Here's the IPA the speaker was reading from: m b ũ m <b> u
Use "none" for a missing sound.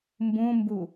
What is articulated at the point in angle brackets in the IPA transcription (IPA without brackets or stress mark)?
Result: b